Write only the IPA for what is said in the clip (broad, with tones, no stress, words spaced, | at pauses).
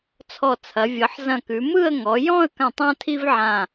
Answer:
t͡sʰɔ˧˩t͡sʰɐ˩˧ vʲɤ˩˧ħzɐ̃˧˩kʉ˩˧mɯ˥˧ə̯ ŋɔ˩˧jɔ̃˥˧ə̯kã˧˩tˤ ã˥tʰi˥vʕã˧˩